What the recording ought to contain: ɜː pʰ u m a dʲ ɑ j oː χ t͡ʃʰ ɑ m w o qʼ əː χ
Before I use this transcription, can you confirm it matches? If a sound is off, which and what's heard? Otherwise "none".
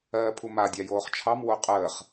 none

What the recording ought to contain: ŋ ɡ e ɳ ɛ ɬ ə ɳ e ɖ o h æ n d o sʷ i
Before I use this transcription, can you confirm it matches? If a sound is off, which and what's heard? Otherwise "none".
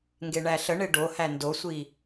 ɛ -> æ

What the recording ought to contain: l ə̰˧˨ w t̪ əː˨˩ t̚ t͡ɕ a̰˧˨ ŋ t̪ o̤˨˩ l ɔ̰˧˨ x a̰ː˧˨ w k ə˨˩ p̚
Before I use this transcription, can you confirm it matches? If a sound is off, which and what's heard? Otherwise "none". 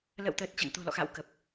none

